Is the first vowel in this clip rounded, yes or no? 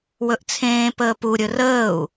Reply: yes